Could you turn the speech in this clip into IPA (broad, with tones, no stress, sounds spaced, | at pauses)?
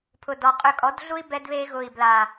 pʰ ʊ˨ d ɔ˨ qʼ ʏ˧ kʼ ɔ˨˦ d ɮ u˦ i̯ b ɛ˧ d β e˧ ɣ ʊ˨ i̯ b l a˨